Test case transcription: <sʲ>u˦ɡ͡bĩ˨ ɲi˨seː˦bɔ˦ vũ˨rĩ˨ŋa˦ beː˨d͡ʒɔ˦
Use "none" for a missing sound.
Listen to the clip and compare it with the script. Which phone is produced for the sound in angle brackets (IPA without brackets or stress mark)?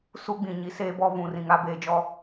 s